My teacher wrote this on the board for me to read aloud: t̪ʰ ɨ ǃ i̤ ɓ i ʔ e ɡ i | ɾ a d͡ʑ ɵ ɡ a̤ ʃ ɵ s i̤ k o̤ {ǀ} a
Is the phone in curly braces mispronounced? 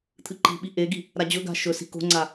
yes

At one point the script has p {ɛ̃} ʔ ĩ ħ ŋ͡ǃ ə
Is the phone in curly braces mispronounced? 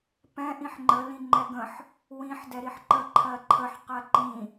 no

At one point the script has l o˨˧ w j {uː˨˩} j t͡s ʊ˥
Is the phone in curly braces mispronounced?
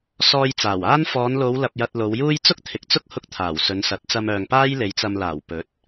yes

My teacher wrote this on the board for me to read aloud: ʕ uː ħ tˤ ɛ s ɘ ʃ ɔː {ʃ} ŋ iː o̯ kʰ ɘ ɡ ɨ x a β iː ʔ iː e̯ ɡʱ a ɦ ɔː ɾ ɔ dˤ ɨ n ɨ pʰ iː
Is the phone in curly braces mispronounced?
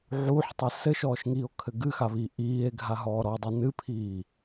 no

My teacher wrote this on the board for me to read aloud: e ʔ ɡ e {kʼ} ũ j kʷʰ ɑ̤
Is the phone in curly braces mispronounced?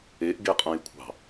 yes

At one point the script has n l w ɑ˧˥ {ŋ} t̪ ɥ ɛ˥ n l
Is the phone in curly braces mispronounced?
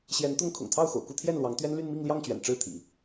no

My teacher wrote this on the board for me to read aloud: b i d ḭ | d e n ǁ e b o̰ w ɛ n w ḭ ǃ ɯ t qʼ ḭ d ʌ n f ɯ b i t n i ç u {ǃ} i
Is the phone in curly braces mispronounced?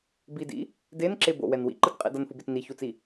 yes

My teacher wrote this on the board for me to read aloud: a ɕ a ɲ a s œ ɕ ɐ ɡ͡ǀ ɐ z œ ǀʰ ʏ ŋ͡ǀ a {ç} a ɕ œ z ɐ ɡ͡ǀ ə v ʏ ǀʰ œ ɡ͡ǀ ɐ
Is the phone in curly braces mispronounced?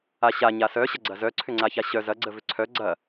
no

